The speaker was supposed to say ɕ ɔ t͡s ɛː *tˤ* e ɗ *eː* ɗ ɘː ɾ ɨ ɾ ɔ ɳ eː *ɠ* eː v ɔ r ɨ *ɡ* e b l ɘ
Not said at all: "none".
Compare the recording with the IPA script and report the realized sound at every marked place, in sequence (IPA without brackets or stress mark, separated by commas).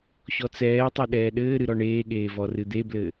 tˤ, ɛː, ɠ, d̪